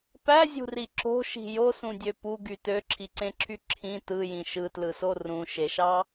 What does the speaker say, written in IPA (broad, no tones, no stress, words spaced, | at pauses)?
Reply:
pæzʲṳri ǁo̤ʃi̤ josũdʲø puɡy tøǁʰiǀẽǁʰy ǁʰĩ tɯjĩ ʃɯtlɯso rũʃeʃɑ